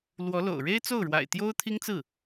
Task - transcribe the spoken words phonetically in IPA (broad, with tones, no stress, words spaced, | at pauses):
lwɔ˧˥lo̰˨˩ʊ̯ ɻe˥ɪ̯t͡so˥˩ʊ̯ɻwa̰˨˩ɪ̯ t̪jo˥ʊ̯t̪ʰi˥ŋt͡sɹ̩˥˩